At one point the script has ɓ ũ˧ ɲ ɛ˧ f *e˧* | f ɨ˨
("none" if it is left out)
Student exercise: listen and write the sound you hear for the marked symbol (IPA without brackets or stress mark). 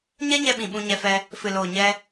ɛ˧